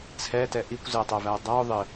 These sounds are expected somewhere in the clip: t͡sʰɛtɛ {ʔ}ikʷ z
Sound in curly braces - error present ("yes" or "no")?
no